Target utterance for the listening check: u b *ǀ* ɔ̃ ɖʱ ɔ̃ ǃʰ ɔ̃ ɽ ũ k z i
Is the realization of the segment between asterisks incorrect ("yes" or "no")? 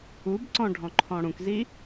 no